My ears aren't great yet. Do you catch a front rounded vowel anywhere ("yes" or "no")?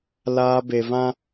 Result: no